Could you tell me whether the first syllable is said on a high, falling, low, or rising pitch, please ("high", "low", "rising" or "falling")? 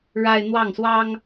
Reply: high